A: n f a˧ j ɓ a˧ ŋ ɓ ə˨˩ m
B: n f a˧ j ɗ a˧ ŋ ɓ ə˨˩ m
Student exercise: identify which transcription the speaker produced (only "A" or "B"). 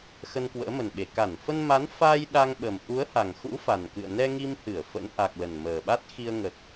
B